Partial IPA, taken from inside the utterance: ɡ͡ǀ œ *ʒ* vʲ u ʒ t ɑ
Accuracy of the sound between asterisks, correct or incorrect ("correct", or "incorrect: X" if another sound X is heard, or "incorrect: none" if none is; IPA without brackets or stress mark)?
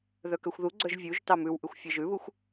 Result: correct